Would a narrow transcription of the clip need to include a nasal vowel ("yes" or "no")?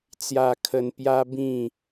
yes